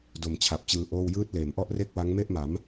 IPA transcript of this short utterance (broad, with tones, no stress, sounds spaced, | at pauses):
d o˨˩ m t͡ɕʰ a˨˩ p̚ t͡ɕ ɯː˧ ʔ oː˥˩ w j ɯː˦˥ t̚ l eː˩˦ m ʔ ɔ˥˩ ʔ r e˥˩ k̚ w a˦˥ ŋ m e˥˩ ʔ m a˩˦ m